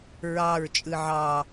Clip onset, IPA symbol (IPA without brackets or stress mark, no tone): ɹ